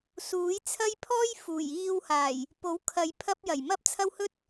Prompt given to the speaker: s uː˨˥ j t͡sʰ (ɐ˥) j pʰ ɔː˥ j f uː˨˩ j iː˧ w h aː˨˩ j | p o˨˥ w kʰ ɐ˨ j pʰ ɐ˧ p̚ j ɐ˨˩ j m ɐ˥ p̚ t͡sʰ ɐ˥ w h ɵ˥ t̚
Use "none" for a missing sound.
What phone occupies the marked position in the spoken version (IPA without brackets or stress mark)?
ɐ˥